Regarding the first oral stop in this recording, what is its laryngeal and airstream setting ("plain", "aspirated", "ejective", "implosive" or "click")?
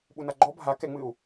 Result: implosive